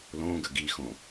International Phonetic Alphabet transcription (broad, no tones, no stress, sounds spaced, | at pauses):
l õ ɡ ə ɡ i x õ